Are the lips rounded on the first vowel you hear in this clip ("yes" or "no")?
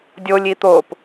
yes